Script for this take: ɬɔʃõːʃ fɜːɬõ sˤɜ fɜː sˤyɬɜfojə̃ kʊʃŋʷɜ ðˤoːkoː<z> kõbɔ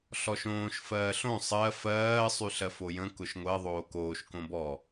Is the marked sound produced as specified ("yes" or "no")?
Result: no